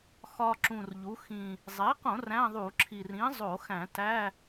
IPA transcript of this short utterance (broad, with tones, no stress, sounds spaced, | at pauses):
x ɒ˧ ǁ ũ˨˩ r ʎ u˩˧ x ĩ˨˩ | zˤ e˩˥ q õ˧˩˧ r æ̃˧˥˧ ðˤ u˧˩˧ ǁʰ i˨˩ r ĩ˩˥ zˤ o˧˩˧ x æ̃˧˩˧ t æ˧˥˧